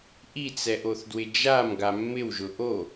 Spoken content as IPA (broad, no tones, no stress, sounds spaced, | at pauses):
ʔ i t͡s ɛ ʔ o θ d w ɪ d͡ʒ a m ɡ a mː ɪ w ʒ ʊ ʔ o